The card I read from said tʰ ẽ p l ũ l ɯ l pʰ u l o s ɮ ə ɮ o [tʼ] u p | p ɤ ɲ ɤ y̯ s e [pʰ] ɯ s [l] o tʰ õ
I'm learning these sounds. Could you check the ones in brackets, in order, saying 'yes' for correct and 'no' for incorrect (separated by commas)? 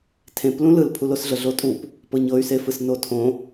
yes, no, no